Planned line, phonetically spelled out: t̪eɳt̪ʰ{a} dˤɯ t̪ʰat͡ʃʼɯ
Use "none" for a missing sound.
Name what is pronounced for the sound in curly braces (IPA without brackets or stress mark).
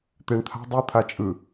a̤